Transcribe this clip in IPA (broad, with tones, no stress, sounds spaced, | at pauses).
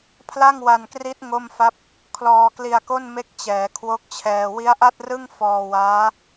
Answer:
pʰ l a˥˩ ŋ w a˧ n k r i˦˥ t̚ ŋ o˥˩ m f a˥˩ p̚ | kʰ l ɔː˧ k l i˧ a̯ k o˥˩ n m e˦˥ k̚ t͡ɕ ɛː˩˦ kʰ w o˦˥ k̚ t͡ɕʰ ɛː˧ w i˦˥ a̯ ʔ a˥˩ t̚ r ɯ˥˩ ŋ f ɔː˧ w aː˦˥